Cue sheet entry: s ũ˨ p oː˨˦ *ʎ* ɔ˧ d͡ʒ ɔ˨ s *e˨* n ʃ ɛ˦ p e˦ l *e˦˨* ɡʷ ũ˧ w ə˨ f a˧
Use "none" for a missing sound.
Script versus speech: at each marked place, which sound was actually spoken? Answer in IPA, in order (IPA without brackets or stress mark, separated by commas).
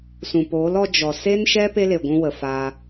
l, e˦, e˨